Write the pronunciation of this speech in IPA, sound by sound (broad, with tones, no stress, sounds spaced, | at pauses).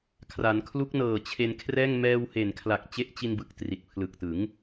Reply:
kʰ r a˩˦ n kʰ l u˦˥ k̚ n ɤː˨˩ t͡ɕʰ e˧ n kʰ r ɛː˥˩ ŋ m ɛː˧ w h e˨˩ n kʰ l a˨˩ k̚ t͡ɕ e˦˥ ʔ t͡ɕ i˧ n b ɯ˨˩ k̚ t r i˨˩ t̚ pʰ l ɯ˨˩ k̚ t ɯ˩˦ ŋ